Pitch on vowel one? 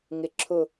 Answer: low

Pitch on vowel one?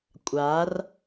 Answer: rising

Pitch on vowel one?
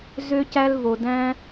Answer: high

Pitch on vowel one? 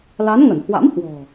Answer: rising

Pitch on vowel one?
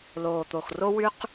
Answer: low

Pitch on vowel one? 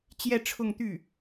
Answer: falling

